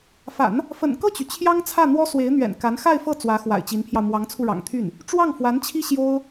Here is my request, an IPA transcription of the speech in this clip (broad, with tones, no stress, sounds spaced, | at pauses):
f a̰˨˩˦ n | f ə̰˨˩ n k ɤ˥˩ t͡ɕ y˩ t͡ɕʰ j ɑ˥ ŋ t͡sʰ ä˥˩ n̪ w ɔ˥ s w e˧˥ ɪ̯ n̪ ɥ ɛ̰˨˩ n k a˧˥ n x a˥˧ ɪ̯ f ɤ˥˩ t͡s w ä˧˥ x w a̰˨˩ ɪ̯ t͡ɕ i˧˥ n pʰ j ɑ˧ ʊ̯ m w ɑ˧˥ ŋ t͡sʰ u˧ ɻ ɑ̰˨˩ ŋ t̪ʰ y˥˩ n | ʈ͡ʂ w ɑ˥˩ ŋ f w a˧˥ n t͡ɕʰ i˥ ɕ j o˥ ʊ̯